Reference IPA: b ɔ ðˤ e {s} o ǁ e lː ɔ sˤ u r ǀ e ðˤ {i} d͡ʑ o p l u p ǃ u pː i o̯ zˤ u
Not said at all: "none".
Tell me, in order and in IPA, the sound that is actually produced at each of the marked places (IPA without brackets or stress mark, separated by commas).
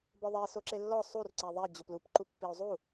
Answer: s, e